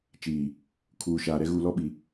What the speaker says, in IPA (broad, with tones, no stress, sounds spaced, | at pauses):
t͡ʃ iː˨ | kʰ uː˨ ʃ aː˨ ɾ ɛ˦ ɣ uː˨ l ɔ˦ ɓ i˨